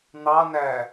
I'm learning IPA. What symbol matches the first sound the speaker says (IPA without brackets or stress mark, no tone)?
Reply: n̪